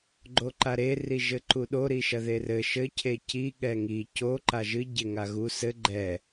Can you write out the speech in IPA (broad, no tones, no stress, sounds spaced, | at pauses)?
ɡ͡ǃ o ǃ a ɾ e r i ʒ ɘ ǃ u ɗ o ɾ i ʃ ɐ ð e r ɘ ʃ ɘ cʰ e c i ɠ ɛ ŋ i c o ǃ a ʒ ɨ ɟ e ŋ a ɣ u s ɘ ɡ͡ǃ ɛ